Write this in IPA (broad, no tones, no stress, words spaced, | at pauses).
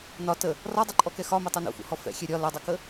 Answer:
nɒ tə | rɒdˤɛǃʼɔkɛ xɒmɛtˤu nṵfṵhɔ fɛ̰xʲɛ ɾʲɒ lɐdˤukə